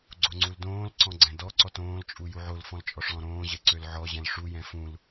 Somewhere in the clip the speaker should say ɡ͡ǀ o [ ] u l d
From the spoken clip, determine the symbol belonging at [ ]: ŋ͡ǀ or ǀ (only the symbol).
ŋ͡ǀ